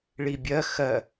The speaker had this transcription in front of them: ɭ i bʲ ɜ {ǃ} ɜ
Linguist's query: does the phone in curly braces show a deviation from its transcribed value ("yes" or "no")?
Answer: yes